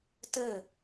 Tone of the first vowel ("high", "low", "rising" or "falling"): falling